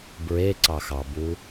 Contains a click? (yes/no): yes